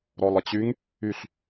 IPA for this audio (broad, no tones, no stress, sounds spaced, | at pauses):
ɾ ɔ lˠ ə t͡ɕ y ŋ | y ɬ